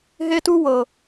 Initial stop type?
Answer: plain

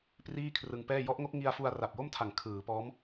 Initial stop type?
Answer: plain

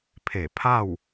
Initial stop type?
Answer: aspirated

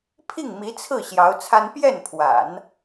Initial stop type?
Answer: aspirated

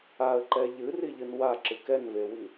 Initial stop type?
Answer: click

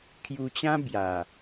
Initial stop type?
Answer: aspirated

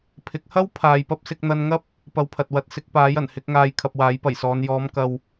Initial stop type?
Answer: aspirated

